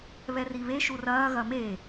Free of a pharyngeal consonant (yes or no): yes